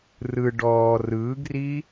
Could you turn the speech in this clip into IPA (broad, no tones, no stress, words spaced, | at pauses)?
rɯ ɖɔː rɯːɡriː